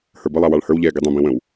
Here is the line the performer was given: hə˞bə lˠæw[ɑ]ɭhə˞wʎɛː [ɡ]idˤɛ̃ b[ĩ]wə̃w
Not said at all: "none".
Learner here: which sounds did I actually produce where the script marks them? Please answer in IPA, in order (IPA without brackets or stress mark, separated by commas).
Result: ɑ, ɡ, ĩ